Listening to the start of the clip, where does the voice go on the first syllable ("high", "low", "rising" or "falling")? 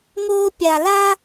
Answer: high